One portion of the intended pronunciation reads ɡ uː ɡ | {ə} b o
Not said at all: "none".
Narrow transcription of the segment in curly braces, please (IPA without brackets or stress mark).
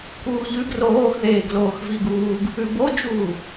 ʉ